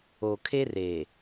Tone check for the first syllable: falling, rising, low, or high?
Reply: low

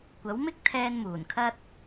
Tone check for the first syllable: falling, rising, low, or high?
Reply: rising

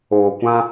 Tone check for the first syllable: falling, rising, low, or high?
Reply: low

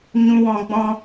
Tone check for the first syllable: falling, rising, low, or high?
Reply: high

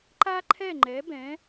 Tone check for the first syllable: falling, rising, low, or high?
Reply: high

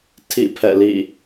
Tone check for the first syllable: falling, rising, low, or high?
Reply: falling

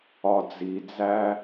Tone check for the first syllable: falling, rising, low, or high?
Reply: low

